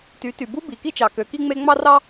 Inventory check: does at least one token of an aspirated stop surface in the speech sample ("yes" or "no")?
no